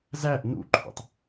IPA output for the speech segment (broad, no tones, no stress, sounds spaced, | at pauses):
z æ ʔ n ṵ ǃʰ ṵ tˤ